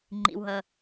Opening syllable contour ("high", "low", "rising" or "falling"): low